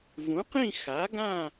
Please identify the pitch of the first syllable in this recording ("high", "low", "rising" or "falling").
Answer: rising